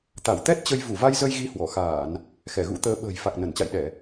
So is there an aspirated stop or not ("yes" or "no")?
no